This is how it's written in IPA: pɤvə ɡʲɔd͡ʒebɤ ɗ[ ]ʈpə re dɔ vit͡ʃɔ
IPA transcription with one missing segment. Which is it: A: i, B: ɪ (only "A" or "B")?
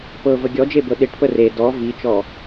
B